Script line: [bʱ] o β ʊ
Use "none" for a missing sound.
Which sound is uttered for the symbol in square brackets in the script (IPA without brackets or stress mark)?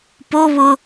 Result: p